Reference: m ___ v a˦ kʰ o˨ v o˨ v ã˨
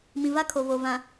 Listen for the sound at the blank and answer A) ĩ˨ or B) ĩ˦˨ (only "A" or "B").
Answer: A